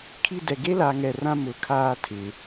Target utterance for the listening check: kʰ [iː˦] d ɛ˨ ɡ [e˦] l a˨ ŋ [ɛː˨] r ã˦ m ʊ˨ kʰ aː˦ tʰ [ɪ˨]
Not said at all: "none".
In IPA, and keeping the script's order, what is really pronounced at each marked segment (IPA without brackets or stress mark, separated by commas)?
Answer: i˦, e˦, ɛ˨, ɪ˨